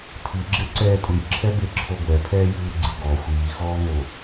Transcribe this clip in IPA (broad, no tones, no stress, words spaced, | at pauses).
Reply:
tʰiɡ͡ǁeǀɛː tʼɯjǁʰɛbeǁʰo ɡʷɛpʰɛːjɯːɡ͡ǀi ɡɔ xʷiːxɔːŋo